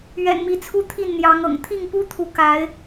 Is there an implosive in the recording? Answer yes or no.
no